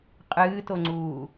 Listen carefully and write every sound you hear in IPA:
qʼ ɨː t o ŋ͡ǀ uː

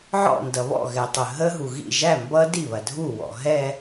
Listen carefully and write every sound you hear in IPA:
ʕ ɔ̰˥˩ n d ʌ˩ β ɔ̰˥˩ ɣ ɛ˩ tˤ ə˩ ɦ ə˦˥ ɦ u˩ ɣ ḭ˥˩ ʒ æ˥˩ m b ʌ˦˥ d i˥˩ β ɐ˩ dʱ u˥˩ w ɔ̰˩ ɦ ɛ˥˧

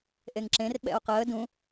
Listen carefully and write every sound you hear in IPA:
ʔ e ŋ ǁ ẽ r ɓ ɛ̰ o̯ q əː d ũ

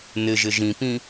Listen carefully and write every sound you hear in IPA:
n ɪ ʒ ɪ ʒ ĩ p ĩ

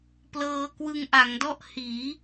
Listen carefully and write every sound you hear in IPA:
p l ɤː˧ k w ɯ˧ ŋ ʔ a˩˦ ŋ d ɔ˥˩ ʔ h iː˩˦

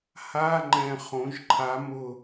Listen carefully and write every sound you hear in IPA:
h a˧˥˧ ŋ͡ǃ ɛ̃˨˩ χ õ˩˧ ʒ ǃʰ a˩˧ m ʊ˨˩

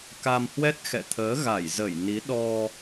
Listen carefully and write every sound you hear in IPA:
k a˧ m h w ɛ˦˥ t̚ x ɛ̰˧˨ t̪ʰ əː˨˦ ɣ a˧˩ j z ə˧˩ j n i˨˦ ɗ ɔ˧

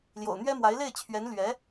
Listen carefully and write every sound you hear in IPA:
l j o̰˨˩ ʊ̯ n̪ ɥ ɛ˥ m w a˧˥ ɪ̯ l e˥˩ ɪ̯ t͡ɕʰ ɥ ɛ˧˥ n l ɥ ɛ˧˥

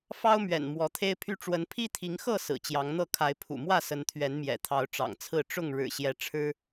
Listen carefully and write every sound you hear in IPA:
f ɑ˦ ʊ̯ m ɥ ɛ̰˨˩ n m w ɔ˨˦ t̪ʰ e˦ ɪ̯ pʰ y˦ ʈ͡ʂ w ə˨˦ n pʰ i˦ t̪ʰ i˨˦ ŋ x ɤ˥˨ s ɹ̩˨˩ t͡ɕ j ɑ˨˦ ŋ n̪ ɤ˥˨ kʰ a˨˦ ɪ̯ pʰ ṵ˨˩ m w ä˥˨ s ə˨˦ n t̪ʰ ɥ ɛ˨˦ n m j ɛ̰˨˩ t̪ʰ ɑ˨˦ ʊ̯ ʈ͡ʂ ɑ̰˨˩ ŋ t͡sʰ ɹ̩˥˨ ʈ͡ʂ ʊ˥˨ ŋ ɻ ɻ̩˨˩ ɕ j ɛ˨˦ ʈ͡ʂʰ ɻ̩˦

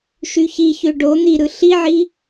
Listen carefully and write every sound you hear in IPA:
ʃ y ç i ç ø ɖ o n̪ i ɾ ɯ ɬ i ʕ i

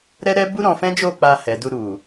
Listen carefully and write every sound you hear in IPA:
ɾ ɛ˦ ɾ ɛ˦ b u˦ ɾ ɔ̃˧ f ɛ̃˦ d͡ʒ o˦˨ k͡p a˧ h ɛ˨ d u˧ ɾ u˨

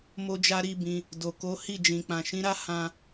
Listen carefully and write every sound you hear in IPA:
m o˧ d͡ʒ a˧ ɾ i˦ b ĩ˧ | d o˨ k o˨˦ h i˦˨ d͡ʒ ĩ˨ k͡p ã˨ ʃ ĩ˨˦ ɾ a˦ h ã˧

